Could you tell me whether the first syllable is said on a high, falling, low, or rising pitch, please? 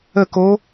falling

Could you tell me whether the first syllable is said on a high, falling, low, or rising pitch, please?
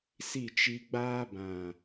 falling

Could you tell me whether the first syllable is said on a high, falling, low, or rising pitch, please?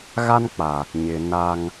high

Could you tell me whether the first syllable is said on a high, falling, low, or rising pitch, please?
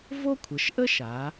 high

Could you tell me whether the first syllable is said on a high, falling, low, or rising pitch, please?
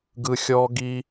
high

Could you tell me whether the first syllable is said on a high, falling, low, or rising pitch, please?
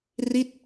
falling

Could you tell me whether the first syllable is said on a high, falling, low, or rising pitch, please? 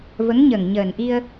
rising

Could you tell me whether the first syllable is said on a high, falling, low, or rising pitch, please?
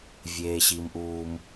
high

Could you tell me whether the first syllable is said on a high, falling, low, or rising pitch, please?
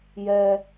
low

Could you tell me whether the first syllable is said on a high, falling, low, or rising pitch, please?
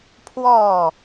falling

